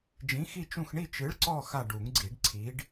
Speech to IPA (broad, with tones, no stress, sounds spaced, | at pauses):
d͡ʒ ĩ˨˥ x i˦˨ t͡ʃ ũ˦˨ x ɳ i˦˨ t͡ʃ ɨ˨˥ ɭ ǀ ɔ˦˨ x a˦˨ ɖ u˨˩˦ ŋ ɡ͡ǀ i˨˩˦ ɖ ǀʰ i˨˥ ɖ